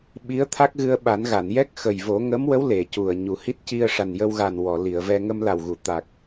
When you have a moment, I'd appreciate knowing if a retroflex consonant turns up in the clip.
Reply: yes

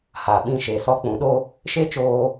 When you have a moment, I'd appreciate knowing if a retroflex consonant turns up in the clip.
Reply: no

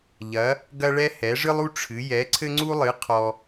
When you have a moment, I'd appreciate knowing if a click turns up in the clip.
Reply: yes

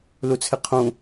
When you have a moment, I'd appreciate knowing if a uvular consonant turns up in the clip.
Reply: yes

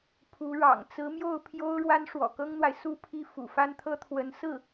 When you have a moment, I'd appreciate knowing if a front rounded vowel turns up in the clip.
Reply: no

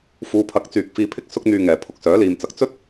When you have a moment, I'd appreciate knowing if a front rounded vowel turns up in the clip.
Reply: yes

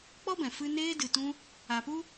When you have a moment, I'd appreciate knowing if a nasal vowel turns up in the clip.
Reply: yes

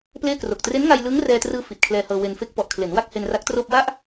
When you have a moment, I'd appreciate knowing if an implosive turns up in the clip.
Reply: no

